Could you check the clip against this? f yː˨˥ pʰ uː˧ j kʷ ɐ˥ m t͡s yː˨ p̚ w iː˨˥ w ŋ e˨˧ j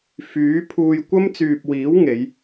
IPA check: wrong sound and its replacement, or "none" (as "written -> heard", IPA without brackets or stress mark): none